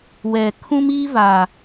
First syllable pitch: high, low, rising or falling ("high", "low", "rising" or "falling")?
low